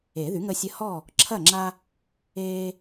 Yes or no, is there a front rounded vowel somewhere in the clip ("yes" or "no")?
yes